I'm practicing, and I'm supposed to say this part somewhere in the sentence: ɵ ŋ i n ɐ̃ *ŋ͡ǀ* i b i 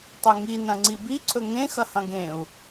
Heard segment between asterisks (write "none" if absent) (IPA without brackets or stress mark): ŋ͡ǀ